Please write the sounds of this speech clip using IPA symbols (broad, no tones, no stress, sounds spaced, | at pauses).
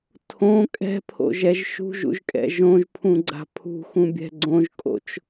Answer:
tʰ õ kʼ ɛ̤ pʰ o̰ ʒ ɛ ʒ ʃ ṳ ʒ ṵ ʒ kʼ ɛ̰ ʒ õ ʒ pʰ ũ ɡ͡ǀ a̤ pʰ ṳ x ũ bʲ ɛ̤ ɡ͡ǀ õ ʒ kʼ o̰ t͡ʃ